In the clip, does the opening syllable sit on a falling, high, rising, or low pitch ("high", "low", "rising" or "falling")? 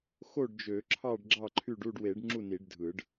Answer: falling